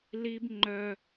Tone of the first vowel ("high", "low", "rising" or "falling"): high